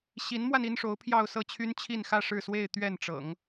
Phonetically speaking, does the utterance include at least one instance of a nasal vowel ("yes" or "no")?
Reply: no